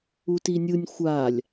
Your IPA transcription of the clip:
u t i nʲ ɯ nʲ xʷ a lʲ

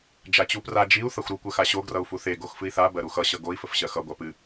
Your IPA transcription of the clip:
d͡ʒ a t͡ɕ u p r a d͡ʒ i u̯ θ ʌ xʷ ɾ u kʷ ɜ x a ɕ o ɡ r ʌ u̯ f u θ e ɡ o x f ɨ i̯ θ a b ɜ ɾ u x ʌ ɕ ʌ ɡ o i̯ f ə f ɕ ɜ x ʌ ɡʷ a p ɨ

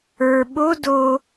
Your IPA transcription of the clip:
ə˞ ɓ o d o

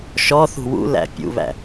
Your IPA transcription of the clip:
ʃ ɔ θ ṳ w ṵ l æ̰ pʲ ṵ β æ̰

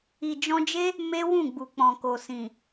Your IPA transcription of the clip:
i˨ d͡ʒ ɔ̃˧ d͡ʒ e˦ | m e˦ w ũ˦˨ ɡ͡b u˨ k͡p ɔ̃˨ k o˨ s ĩ˨

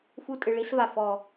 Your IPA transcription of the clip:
f u˦ tʼ ɨ˨ ɭ i˦ s v a˨ f ɔ˨

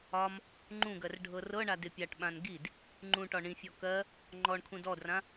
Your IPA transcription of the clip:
ɒ m | ŋ͡ǃ ũ ɡ ɜ r ɖʱ ɤ r ɤ ɳ a d ɪ pʲ a ʈ ɓ ã n ɡ i d | ŋ͡ǃ ũ ʈ ɒ ɳ ĩ fʲ ɔ k ɜ | ŋ͡ǃ ɔ ɳ kʰ ũ d ɔ d r ã

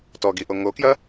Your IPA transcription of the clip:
t ɔ ɡ i ʔ o ŋ o k j ɐ

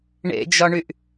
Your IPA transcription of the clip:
ɳ ḛ d͡ʒ ɒ ɳ y ʔ

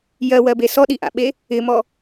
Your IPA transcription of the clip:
j ɜ w ɜ b e s ɔ ɗ i ʔ a̰ ɓ e | ɪ m ɔ

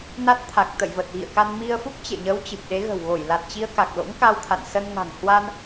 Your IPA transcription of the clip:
n a˦˥ t̚ t̪ʰ a˨˩ k̚ t̪ ə̰˧˨ j v ə˨˩ t̚ ɣ ḭ˧˨ ə̯ k a˧ n m i˧ ə̯ f u˦˥ k̚ t͡ɕ ḛ˧˨ ɲ əː˨˦ w t͡ɕ ɨ˨˩ p̚ ɗ e˨˦ ɣ ə̤˨˩ w ɣ o˧˩ j l a˨˩ t̚ t͡ɕ i˧ ə̯ k a˨˩ k̚ l o̰˧˥ ŋ k a˧ w t̪ʰ a̰˧˨ n s ə˧ n ŋ a̤˨˩ ŋ h w a˧ n

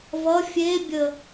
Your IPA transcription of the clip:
v ʌ fʲ e bʲ ə

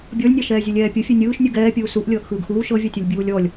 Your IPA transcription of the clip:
bʲ ɔ lʲ nʲ a ʃ ɛː zʲ ɯ lʲ ɛː pʲ u fʲ e nʲ ɯː ʃ nʲ u ɡ ɛː pʲ uː s u ʔ lʲ ɤː ʔ x ɯː ɡ x uː ʃ ɤ vʲ a tʲ o lʲ bʲ uː lʲ ɔ lʲ

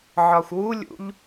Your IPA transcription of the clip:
ʕ ɒ xʷ w u lʲ ṵ ʎ

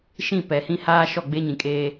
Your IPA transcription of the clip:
ʃ ĩ˦˨ p ɛ˨ h ĩ˦ h aː˦ ʃ ɔ˦˨ ɡ͡b e˦ ɲ ĩ˨ kʼ eː˦

